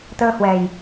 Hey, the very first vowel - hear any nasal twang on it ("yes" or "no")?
no